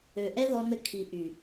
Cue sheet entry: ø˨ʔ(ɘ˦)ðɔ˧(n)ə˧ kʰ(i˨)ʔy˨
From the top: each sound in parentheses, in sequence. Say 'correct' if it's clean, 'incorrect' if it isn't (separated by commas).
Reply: incorrect, correct, correct